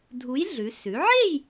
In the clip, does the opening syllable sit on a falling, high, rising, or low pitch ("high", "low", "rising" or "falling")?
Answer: rising